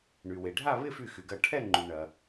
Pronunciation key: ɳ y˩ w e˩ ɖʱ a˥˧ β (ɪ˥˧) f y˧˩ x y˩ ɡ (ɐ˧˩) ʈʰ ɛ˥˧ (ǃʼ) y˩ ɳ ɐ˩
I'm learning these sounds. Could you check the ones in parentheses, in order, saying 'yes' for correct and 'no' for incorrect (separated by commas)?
yes, yes, no